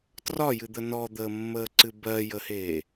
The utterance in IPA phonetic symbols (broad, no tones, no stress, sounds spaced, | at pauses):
t r ɒ j ɨ d̪ ə n ɔ d̪ əː mː əː ǀ ɨ b ɜ j ə h eː